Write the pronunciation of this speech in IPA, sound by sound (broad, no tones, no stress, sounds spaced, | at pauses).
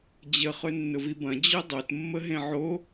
d͡ʑ ə χ ɵ nː ʊ v i b ɐ̃ d͡ʑ ɵ dˤ o t mː ə ɦ ẽ ʕ o